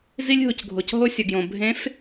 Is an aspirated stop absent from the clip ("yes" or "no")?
yes